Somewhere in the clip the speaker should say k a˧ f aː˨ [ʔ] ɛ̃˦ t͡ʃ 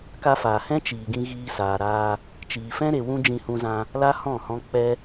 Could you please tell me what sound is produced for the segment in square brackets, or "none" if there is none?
h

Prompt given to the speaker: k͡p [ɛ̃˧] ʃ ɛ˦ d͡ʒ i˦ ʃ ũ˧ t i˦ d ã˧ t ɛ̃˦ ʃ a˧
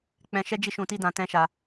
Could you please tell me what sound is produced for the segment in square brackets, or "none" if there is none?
ɛ̃˧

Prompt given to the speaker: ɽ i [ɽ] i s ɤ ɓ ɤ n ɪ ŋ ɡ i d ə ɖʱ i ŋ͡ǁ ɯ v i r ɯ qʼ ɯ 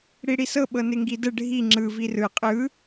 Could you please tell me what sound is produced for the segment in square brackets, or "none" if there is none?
ɽ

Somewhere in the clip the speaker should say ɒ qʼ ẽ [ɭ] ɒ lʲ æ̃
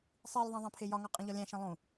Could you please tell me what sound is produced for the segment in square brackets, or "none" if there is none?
ʎ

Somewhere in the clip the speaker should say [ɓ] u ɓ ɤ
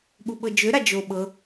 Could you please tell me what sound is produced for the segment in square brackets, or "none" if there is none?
ɓ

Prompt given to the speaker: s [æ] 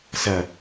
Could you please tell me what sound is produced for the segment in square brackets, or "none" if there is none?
ɐ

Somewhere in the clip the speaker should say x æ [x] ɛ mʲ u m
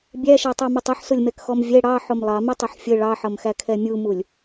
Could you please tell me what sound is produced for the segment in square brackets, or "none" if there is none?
kʰ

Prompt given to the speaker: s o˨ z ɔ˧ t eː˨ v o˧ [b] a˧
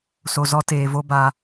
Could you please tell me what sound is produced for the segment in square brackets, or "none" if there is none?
b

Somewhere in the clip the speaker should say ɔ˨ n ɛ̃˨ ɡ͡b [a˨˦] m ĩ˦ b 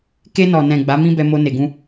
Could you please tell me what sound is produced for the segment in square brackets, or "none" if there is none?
a˨˦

